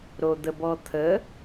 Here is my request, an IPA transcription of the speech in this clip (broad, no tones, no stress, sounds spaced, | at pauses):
ɾ o d̪ ə b ɔ t̪ʰ ə